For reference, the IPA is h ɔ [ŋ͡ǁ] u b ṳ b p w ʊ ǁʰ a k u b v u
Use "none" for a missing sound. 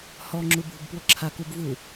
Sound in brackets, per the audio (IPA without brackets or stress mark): ŋ͡ǁ